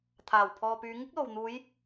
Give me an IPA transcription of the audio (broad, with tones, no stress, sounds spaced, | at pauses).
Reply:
t̪ʰ aː˨˩ w pʰ ɔː˨ p yː˨˧ ŋ ɪ˥ k̚ l o˨ w n̪ uː˨˧ j